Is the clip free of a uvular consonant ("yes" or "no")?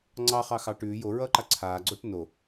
no